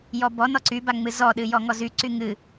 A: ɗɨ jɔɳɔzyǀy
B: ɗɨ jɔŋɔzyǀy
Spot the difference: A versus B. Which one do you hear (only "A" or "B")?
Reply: B